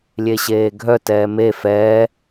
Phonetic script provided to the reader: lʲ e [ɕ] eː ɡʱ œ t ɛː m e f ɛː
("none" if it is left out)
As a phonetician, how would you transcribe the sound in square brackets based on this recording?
ɕ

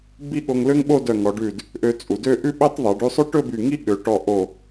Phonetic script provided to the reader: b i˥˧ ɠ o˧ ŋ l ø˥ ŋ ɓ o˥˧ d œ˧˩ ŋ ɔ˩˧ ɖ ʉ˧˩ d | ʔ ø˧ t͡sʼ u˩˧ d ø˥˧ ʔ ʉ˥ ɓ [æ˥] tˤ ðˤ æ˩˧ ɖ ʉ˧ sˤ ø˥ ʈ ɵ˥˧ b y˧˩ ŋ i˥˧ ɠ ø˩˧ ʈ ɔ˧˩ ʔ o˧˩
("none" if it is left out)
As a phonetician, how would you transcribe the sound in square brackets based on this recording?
æ˥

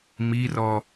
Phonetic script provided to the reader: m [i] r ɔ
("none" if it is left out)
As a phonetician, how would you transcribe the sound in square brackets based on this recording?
i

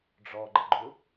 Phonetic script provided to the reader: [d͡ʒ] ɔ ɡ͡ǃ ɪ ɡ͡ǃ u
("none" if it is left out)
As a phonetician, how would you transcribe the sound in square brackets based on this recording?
ɖ͡ʐ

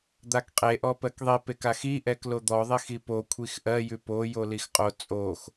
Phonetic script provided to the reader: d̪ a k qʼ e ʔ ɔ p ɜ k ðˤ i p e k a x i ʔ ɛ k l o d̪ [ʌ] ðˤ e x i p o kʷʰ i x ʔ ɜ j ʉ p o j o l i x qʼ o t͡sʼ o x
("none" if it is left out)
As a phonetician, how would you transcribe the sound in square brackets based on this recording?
ɔ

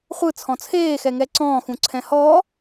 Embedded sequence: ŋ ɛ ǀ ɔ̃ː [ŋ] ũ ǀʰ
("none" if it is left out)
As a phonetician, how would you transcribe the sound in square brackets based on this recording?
x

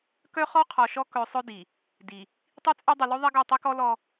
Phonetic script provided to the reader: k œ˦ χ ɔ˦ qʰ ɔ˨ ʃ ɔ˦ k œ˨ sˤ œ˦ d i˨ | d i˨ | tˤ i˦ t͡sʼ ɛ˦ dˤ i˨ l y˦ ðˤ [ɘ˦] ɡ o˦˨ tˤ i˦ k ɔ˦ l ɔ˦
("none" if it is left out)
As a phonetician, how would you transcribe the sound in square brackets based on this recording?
ɛ˦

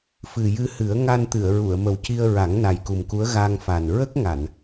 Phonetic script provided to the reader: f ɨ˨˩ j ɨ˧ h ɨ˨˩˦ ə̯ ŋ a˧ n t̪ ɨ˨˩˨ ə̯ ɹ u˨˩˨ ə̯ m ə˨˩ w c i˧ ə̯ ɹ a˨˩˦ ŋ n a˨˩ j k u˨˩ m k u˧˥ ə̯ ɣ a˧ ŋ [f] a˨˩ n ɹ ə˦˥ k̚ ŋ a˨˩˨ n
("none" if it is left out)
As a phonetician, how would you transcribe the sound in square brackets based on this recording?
f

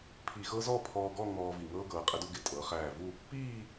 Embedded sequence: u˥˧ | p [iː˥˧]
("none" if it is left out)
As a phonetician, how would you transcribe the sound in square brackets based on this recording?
iː˥˧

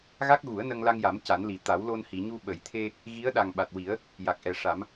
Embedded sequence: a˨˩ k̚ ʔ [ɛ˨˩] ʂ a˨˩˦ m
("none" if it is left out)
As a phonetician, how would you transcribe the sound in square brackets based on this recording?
ɛ˨˩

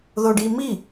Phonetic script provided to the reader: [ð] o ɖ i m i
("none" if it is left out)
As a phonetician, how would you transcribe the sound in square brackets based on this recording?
ð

